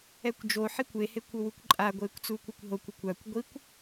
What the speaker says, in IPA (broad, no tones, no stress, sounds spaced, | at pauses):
ɛ kʷ d͡ʒ o ħ i kʷ e h e kʷ o w u kʷ ǃʼ a ɡʷ eː kʷ t͡s uː kʷ a kʷ ɦ o kʷ ʌ kʷ a kʷ ɡʷ i kʷ